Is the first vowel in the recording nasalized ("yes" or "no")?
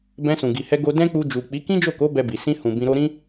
yes